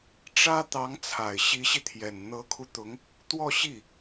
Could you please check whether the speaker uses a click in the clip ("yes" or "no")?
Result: no